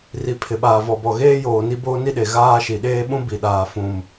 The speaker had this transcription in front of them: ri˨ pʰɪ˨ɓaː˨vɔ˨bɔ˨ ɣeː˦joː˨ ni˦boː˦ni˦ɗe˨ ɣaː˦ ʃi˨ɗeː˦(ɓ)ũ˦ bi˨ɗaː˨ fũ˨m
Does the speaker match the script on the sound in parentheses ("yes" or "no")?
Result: yes